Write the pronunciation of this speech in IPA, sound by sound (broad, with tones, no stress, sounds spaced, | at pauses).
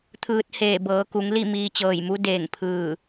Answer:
t̪ʰ ɯː˧ t̚ h eː˧˩ b ɤː˩˧ k u˩˧ ŋ l i˥˨ m iː˧ t͡ɕ ɤː˧˩ j m u˧˥ d eː˧˩ ŋ pʰ ɯː˧˩